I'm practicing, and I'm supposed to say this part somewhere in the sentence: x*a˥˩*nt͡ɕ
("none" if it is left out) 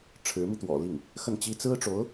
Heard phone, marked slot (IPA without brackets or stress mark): ə˥˩